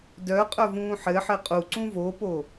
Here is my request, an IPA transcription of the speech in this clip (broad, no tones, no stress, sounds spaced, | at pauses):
d œ qʼ œ v ũː ħ ɘ ħ ɘ qʼ u ǀ ũ v o p o